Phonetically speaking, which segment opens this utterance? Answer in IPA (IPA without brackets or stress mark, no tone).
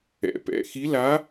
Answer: ɛ̰